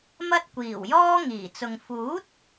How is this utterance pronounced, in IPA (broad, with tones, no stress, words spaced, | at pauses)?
mɐ˥t̚kʷiː˨˩wjɔː˥ ŋiː˨˩t͡sʊ˨ŋ fuː˨˥t̚